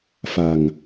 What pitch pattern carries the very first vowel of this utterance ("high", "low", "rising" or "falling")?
low